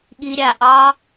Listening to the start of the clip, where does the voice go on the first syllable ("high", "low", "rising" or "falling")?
low